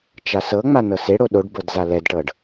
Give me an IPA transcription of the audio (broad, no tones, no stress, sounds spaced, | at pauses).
t͡ʃ a s ɤ ŋ͡m a n ɤ s e ɽ o ɗ o ɖ b ɤ d z a l ɛ d ʈ ɤ ɖ